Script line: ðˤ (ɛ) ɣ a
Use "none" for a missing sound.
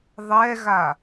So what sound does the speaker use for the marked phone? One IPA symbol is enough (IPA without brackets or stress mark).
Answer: ɛ